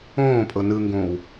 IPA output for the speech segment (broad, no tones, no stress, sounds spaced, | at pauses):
õː pʼ ɤ n ɯ ŋ ɡ õː w